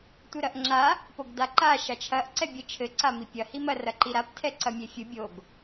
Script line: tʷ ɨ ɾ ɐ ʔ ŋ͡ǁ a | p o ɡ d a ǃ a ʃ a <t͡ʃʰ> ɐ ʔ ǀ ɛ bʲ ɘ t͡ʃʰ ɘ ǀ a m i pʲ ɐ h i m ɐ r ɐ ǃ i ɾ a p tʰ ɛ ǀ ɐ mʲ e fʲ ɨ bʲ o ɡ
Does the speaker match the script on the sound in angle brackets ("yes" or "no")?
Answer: yes